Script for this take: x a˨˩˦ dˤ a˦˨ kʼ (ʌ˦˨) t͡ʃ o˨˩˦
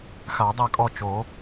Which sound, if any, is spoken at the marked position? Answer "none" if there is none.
ɔ˦˨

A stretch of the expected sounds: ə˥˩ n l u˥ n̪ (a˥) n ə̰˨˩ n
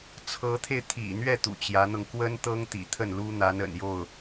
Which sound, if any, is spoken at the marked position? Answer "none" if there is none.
a˧˥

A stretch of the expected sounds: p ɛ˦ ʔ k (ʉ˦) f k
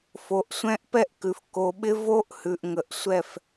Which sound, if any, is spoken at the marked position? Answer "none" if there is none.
ʉ˨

